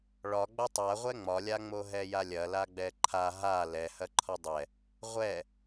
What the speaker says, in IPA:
ɭ ɒ ɡ͡b ɐ tˤ a ʁʷ ɛ ŋ͡m ɒ lʲ a ŋ͡m o ɦ ɛ j a lʲ ɐ l a ɡ͡b ɛ ǃʰ a ɦ a l ɛ h ɐ ǃʰ ɒ dˤ ɛ | ʁʷ ɛ

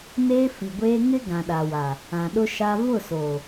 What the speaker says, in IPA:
n eː˦ f i˨ ɡʷ eː˦ ŋ ɪ˦ ɡ ã˨ ɗ a˨ w a˨ | ã˨ ɗ ʊ˦ ʃ a˦ v ʊ˦˨ s oː˨

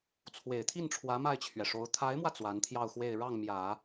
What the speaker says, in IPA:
t͡sʰ w e˨˩ ɪ̯ t̪ʰ i˥˩ n ʈ͡ʂʰ w ä˧˥ m a˥˩ ɪ̯ t͡ɕʰ ɥ ɛ˩ ʂ o˧˥ ʊ̯ t̪ʰ a˧˥ ɪ̯ m w ä˧ t͡s w a˧˥ n t̪ʰ j ɑ˥˧ ʊ̯ x w e˥˧ ɪ̯ ɻ ɑ˥˩ ŋ m j ä˨˩˦

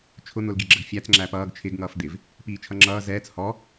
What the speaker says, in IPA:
t͡ʃʰ ʊ n̪ ʊ l ɡ i ɡ͡ǁ ə ɡ fʲ æ t͡s ŋ͡ǁ æ p ʌː ɡ t͡ʃʰ ɪ ɡ ŋ ʌː f d̪ ɪ v | p iː t͡ʃʰ ʌ ŋ͡ǁ ʌː z ɛː t͡s h ɔ

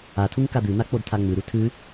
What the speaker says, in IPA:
a tʰ u ŋ k a d̪ ʉ n̪ a k͡p o d t̪ʰ a ŋ͡m ʉ ɾ u tʰ ʉ

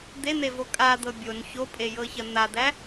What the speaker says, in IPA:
d̪ e n̪ e v o kʼ a d̪ ɤ bʲ o n ç o pʼ e j ɤ ç ɐ n̪ a d̪ æ

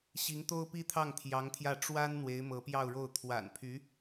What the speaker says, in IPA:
ɕ i˧˥ ŋ t̪ o˥ ʊ̯ p i˥ t̪ʰ ɑ˥˩ ŋ t̪ʰ j ɑ˧˥ ŋ t̪ʰ j ä˥˩ ʈ͡ʂ w a˥ n n̪ w e˧˥ ɪ̯ m ɤ˧˥ p j ɑ˥˧ ʊ̯ ɻ o˥˩ ʊ̯ t̪ʰ w a̰˨˩ n pʰ y˧˥

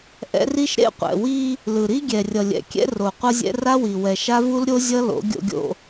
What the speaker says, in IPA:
ʔ ɛ̰˦ r i˦ ʃ ɾ ḛ˦ qʷ ɛ̰˨ w i˦ | l ɯ˨ ɾ i˦ ɡʲ ɛ˨ rʲ ʌ˨ lʲ ɛ̰˨ kʲ ɛ̰˦ r o˨ qʷ ʌ˦ zʲ ɛ̰˦ r a˦ w i˨ w ɛ˨ ʃ a˦ v u˦ l ɾʲ o˦ zʲ ʌ˦ l o̰˨˦ ɡʲ o̰˦ ɡʲ o̰˦

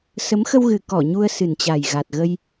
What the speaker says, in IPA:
s ə˨˦ m x ə˧ w ɣ ɨ˨˩ k ɔ˧˩ ɲ u˧ ə̯ s ɨ˨˩ n t͡ɕ a˨˩ j ɣ a˨˩ t̚ ɣ ə˧ j

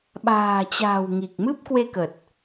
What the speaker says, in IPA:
ɓ a̤ː˨˩ t͡ɕ a̤ː˨˩ w ŋ i˨˩ k̚ m ɨ˦˥ p̚ k w e˧ k ə˨˩ t̚

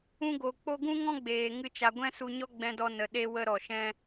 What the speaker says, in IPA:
ũ˧ ɡ o˨ k͡p o˧ ɡ ũ˦ ŋ ɔ̃˦ ɡ͡b eː˨ ŋ ɨ˧ t͡ʃ a˨ ɡʷ ɛ̃˦ s u˧ ɲ ɔ˦ ɡ͡b ɛ̃˧ d ɔ˧ n ə˨ ɗ e˦ w ə˦ ɾ ɔ˨ ʃ ɛ̃˦

